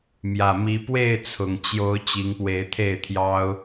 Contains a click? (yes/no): no